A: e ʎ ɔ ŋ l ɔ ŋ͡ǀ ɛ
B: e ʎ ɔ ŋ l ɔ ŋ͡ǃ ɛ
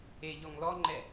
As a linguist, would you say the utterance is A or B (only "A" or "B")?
B